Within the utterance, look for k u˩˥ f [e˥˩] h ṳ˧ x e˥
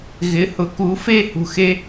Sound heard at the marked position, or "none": e˥˩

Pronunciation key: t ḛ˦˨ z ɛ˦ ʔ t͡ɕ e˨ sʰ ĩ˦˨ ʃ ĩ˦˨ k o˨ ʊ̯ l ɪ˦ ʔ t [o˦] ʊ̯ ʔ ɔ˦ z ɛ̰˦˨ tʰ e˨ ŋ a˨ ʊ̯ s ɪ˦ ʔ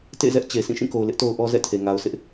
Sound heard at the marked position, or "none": o˦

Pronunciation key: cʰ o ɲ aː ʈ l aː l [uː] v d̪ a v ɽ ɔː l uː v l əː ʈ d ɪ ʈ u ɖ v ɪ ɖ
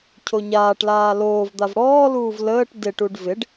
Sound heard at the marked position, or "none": oː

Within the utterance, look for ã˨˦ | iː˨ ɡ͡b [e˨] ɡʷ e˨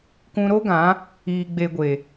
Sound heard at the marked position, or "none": e˨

